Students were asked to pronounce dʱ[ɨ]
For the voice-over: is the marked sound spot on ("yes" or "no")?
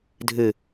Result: yes